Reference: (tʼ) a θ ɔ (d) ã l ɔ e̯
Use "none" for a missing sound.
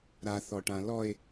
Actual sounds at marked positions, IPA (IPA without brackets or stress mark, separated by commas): ɾ, ʈ